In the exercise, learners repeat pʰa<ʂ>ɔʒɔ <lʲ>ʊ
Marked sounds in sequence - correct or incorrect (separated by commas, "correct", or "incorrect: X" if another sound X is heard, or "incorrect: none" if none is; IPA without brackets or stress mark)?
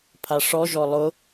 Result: correct, incorrect: lˠ